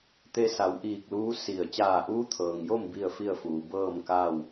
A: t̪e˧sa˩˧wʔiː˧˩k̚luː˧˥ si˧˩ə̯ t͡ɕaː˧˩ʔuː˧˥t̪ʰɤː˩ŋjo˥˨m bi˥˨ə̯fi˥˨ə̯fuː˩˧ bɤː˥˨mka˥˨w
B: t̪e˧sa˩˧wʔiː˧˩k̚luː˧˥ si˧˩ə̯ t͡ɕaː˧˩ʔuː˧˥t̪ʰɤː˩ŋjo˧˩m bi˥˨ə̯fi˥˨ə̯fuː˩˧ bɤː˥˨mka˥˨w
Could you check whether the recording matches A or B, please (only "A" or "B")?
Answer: A